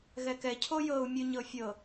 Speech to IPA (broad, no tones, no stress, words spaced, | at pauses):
ɣɛkɛ cʰojɤu̯ mʲuɲɤfʲɤ